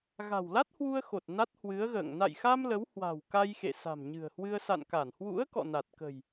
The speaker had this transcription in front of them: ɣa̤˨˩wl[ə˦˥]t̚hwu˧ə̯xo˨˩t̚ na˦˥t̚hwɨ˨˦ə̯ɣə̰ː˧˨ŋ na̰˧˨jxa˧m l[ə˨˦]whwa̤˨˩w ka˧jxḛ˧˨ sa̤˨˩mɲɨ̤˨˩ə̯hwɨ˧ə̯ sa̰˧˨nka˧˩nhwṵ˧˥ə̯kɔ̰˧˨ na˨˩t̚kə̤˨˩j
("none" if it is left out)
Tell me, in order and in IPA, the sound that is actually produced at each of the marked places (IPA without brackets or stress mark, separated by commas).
a˦˥, ə˨˦